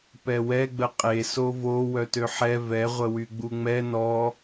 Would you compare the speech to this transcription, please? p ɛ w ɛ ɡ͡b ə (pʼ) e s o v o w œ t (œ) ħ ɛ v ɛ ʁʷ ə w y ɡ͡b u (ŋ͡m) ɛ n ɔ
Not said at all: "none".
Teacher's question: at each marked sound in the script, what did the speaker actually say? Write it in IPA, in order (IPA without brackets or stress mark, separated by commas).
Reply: qʼ, ø, ŋ͡m